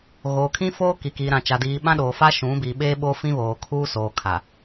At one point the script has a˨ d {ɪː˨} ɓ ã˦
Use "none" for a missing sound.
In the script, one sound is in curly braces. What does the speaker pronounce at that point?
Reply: iː˨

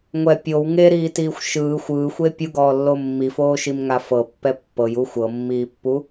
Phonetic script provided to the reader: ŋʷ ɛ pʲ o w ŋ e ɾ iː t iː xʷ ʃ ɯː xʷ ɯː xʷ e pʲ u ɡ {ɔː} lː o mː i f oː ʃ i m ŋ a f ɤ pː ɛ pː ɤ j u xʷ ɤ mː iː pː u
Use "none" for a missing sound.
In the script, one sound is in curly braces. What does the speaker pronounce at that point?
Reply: ɔː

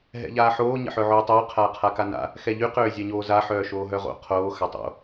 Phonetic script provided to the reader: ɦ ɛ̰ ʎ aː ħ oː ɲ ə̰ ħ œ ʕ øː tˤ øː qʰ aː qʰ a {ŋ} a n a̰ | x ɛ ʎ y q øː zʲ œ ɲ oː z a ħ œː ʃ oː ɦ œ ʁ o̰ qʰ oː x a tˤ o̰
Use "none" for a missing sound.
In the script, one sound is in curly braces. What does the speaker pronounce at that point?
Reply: k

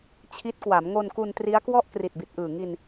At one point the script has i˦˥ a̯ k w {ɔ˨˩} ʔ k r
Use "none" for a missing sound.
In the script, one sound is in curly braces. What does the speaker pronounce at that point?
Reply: ɔ˥˩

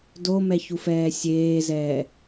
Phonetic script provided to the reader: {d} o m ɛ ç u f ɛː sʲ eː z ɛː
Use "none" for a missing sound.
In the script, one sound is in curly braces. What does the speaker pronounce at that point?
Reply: d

